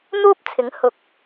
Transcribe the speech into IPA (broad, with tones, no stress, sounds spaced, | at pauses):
n̪ uː˥ p̚ t͡sʰ ɪ˨˥ ŋ h ʊ˨ k̚